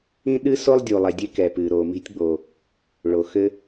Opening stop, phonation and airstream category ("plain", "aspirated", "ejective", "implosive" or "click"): implosive